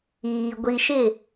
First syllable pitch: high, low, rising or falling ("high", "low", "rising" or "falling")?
low